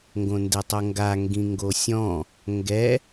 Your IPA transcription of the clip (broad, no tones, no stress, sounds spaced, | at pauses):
ŋ ɡ õ n d e tˤ o ŋ ɡ a ŋ ɡ ĩ ŋ ɡ o sʲ ɔ̃ | ŋ ɡ ɛ